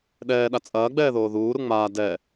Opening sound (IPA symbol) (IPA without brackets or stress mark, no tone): ɗ